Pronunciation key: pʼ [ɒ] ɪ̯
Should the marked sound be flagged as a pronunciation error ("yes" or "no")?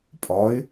no